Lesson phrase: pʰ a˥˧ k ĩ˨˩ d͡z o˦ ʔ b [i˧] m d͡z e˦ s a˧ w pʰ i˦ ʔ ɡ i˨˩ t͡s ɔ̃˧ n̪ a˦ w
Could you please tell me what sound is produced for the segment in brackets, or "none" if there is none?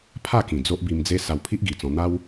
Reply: i˧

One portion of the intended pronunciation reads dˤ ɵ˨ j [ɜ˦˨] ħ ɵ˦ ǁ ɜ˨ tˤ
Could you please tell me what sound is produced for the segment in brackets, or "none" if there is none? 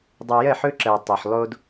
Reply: ɜ˦˨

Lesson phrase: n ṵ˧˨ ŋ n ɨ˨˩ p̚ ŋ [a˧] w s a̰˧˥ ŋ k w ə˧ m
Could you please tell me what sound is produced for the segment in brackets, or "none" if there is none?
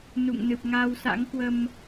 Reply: a˧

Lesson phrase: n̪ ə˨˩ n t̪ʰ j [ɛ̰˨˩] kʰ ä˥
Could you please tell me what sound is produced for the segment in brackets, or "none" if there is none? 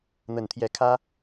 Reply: ɛ˧˥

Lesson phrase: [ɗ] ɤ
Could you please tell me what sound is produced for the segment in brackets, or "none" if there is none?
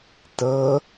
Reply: t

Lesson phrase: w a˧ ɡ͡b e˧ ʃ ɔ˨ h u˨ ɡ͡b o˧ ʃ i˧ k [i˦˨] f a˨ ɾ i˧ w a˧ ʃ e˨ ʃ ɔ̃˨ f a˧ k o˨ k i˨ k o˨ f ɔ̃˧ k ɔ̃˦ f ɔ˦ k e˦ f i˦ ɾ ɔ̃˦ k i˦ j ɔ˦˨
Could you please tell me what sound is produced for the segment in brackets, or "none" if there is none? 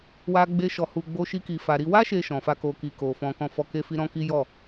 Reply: i˨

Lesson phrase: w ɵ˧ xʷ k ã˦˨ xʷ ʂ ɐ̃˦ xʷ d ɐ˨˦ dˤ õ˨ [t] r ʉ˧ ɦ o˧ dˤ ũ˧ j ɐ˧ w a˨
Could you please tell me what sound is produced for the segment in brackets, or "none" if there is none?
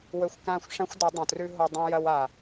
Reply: t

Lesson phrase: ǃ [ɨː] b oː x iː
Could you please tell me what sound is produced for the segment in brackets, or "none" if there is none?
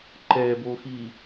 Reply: ɛː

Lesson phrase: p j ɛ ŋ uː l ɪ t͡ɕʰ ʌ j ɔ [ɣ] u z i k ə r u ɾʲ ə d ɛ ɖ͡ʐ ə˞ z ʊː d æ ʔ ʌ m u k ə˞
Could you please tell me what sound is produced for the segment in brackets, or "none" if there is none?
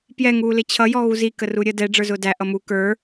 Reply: ɣ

